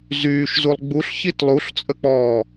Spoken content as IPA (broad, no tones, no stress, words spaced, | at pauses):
zyːʃzulˠ ɡ͡buɬçit lˠuɬt͡sʼək͡pɔː